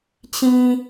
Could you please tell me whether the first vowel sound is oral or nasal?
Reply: nasal